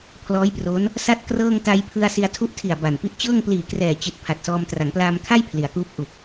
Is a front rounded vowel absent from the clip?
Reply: yes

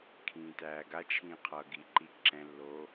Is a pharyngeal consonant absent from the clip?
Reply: yes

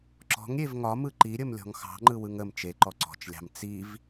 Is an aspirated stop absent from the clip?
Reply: yes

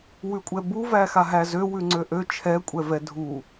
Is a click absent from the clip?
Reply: no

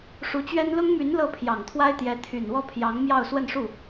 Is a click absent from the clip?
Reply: yes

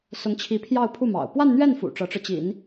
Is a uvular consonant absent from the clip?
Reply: yes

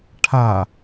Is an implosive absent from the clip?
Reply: yes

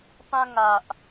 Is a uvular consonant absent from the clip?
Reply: yes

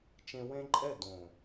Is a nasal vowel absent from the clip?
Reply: no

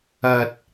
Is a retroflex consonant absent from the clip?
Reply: yes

